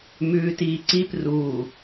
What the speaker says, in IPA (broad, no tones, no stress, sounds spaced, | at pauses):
m ʉː t iː ǀ i p r uː